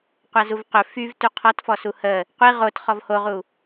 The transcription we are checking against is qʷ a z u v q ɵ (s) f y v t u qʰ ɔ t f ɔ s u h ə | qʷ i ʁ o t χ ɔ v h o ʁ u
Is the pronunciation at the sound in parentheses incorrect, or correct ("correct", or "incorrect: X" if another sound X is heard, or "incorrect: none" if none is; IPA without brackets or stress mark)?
incorrect: none